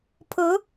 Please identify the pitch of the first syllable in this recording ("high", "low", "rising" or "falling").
rising